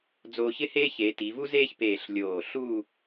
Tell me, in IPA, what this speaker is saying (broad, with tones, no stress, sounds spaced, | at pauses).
d͡z oː˧ ç ɪ˥ h eː˥ ç e˩˧ t i˩˧ v u˥ z eː˥ ç p eː˧˩ ɬ lʲ oː˧˩ ɬ u˥˧